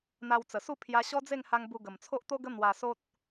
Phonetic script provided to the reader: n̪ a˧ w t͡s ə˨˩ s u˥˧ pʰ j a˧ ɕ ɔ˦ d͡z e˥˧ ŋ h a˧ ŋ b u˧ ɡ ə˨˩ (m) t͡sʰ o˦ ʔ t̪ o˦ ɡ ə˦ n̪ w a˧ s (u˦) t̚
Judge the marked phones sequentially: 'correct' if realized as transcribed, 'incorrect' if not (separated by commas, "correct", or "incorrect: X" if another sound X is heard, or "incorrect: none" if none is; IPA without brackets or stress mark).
correct, incorrect: o˦